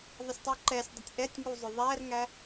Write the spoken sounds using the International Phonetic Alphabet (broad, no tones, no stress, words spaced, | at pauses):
ðˤɪsʲtˤuǃɛsʲdˤʊtʲ ʔɛtʲŋu zˤʊðˤærŋæ